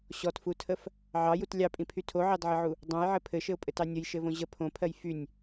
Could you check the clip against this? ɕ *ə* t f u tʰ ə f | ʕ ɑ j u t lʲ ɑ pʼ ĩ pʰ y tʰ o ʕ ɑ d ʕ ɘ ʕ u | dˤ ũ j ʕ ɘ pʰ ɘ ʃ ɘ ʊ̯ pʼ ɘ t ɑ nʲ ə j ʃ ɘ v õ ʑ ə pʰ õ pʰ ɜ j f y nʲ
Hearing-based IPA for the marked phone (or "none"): ɔ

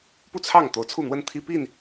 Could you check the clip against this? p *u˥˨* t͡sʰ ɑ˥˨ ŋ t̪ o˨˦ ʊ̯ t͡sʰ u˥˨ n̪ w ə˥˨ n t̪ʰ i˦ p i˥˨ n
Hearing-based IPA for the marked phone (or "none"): u˥˨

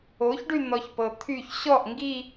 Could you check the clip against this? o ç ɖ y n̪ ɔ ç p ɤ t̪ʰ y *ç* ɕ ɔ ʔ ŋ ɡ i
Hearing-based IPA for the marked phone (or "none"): ç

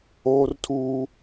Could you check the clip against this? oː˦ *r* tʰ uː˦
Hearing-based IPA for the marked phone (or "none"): r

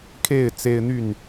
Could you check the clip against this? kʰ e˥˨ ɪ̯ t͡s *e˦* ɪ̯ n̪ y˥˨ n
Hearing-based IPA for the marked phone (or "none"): e˦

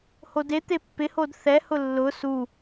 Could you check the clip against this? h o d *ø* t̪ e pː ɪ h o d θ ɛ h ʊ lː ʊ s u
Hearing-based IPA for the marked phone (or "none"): e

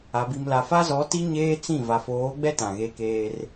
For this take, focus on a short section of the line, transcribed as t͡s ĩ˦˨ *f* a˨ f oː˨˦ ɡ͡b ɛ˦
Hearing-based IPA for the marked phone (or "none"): v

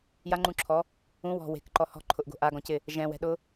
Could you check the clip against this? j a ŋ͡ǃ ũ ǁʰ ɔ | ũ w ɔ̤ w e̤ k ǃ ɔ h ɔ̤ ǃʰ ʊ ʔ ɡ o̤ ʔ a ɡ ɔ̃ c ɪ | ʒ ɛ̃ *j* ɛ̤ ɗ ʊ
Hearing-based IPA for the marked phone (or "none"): w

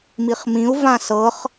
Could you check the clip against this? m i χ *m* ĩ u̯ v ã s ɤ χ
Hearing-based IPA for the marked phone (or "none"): m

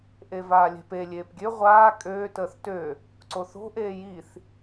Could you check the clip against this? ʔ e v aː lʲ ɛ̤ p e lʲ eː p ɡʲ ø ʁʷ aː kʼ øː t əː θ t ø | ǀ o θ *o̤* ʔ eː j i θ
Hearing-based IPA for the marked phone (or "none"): o̤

